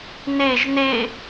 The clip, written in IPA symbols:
neʒ ne

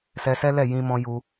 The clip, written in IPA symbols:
sɛ˧sɛ˦ lɛ˦˨jĩ˧mɔ̃˧ ju˧

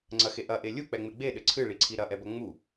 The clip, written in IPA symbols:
ŋ͡ǀɐxe ʔɐʔe lʲuk͡pɛŋ͡me ɡ͡beɗɘ ǀʰɨɭiǀʰi ɾɐʔɛbɐ ŋ͡mu

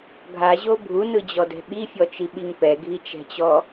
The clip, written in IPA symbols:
ɡʱaʑo bʱunɯd͡ʑɔdɛ̤ ɓifʲɔt͡ʃiɓiŋ pɛɡʱit͡ʃɛ̤t͡ɕɔ

